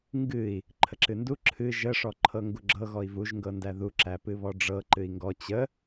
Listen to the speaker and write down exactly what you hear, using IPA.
ŋ ɡ ɨ i̯ | ǃʰ ə ǁ ɨ n d u ǁʰ ɨ ʒ ə ʂ ɔ ǃʰ ɤ ŋ ɡ u ɡ͡ǁ ɤ ɣ ɔ i̯ v u ʒ ŋ ɡ ɤ n d æ ð u ǁ æ p ɨ β ɔ ɖ͡ʐ ɤ ǃ ɨ i̯ ŋ ɡ ɔ t͡ɕ ə

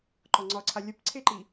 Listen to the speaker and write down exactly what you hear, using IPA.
ǃ ɒ ŋ͡ǀ ɒ ǀʰ a lʲ ə p ǀʰ e ǃ i

